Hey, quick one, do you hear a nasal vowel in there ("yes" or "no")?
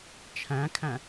yes